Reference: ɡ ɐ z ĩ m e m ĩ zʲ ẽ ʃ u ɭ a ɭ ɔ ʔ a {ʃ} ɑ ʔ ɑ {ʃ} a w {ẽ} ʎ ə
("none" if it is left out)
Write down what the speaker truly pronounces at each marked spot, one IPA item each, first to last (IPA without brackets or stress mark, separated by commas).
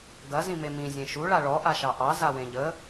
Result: ʃ, z, ẽ